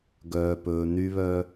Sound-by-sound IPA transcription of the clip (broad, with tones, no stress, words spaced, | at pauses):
ɡœː˧pɵː˧ny˦βœ˦